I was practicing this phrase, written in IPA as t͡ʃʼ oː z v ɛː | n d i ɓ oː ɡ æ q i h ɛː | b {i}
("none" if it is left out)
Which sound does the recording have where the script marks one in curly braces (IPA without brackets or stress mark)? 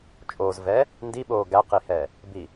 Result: i